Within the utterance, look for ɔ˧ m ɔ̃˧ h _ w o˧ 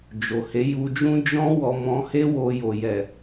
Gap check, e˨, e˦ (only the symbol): e˦